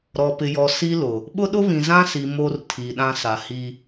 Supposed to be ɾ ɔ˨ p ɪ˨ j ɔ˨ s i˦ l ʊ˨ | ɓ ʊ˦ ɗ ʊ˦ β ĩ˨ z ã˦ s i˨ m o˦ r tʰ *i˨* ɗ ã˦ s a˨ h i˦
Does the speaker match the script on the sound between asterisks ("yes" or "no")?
yes